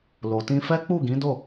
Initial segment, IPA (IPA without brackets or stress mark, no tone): l